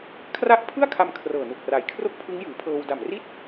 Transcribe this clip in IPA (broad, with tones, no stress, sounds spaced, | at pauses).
kʰ r a˦˥ ʔ pʰ ɯ˥˩ a̯ kʰ a˧ m kʰ r ɤː˨˩ n u˨˩ k̚ r a˩˦ j kʰ r o˥˩ k̚ pʰ ɯ˦˥ ŋ j ɯː˩˦ pʰ ɤː˧ w d a˨˩ m r i˥˩ t̚